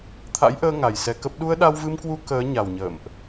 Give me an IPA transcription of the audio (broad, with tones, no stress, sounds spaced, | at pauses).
t̪ʰ a̰˧˥ j ʔ əː˧ ŋ a˨˩ j s ɛ˧ k ə˦˥ p̚ ɗ u˧ ə̯ ɗ a˧ w v ɨ˧ m k w u˧ k əː˨˦ ɲ a˨˩ w ɲ ə̰ː˧˨ m ʔ